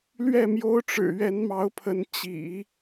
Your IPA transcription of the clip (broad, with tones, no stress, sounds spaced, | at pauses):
l ɥ ɛ˥˩ m j o˥ ʊ̯ ʈ͡ʂ ɻ̩˨˩ ɥ ɛ˧˥ n m ɑ˧˥ ʊ̯ pʰ ə˧˥ n t͡ɕ ḭ˨˩˦